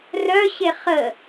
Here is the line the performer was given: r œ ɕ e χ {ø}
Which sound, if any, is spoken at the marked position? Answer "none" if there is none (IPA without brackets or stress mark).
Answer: ə